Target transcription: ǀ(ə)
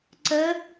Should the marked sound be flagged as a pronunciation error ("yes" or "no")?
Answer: no